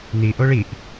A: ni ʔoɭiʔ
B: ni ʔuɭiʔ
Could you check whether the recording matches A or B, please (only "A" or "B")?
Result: A